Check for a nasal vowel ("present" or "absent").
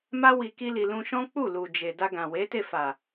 present